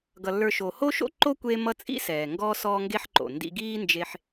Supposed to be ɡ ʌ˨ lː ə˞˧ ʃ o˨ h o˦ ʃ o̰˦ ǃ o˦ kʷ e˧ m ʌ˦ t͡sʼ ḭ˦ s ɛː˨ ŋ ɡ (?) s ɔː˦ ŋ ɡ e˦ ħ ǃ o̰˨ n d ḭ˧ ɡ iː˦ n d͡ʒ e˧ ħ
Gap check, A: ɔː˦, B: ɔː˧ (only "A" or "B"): A